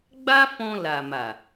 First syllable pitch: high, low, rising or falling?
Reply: high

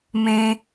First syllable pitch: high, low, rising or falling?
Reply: high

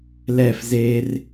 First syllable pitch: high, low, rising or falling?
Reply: falling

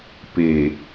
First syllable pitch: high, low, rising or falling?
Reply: low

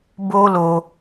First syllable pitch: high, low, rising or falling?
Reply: high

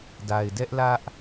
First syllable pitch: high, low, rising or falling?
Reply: low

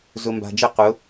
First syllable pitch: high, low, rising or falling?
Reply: low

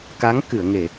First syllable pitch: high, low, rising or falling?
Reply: rising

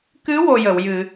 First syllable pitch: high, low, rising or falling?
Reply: rising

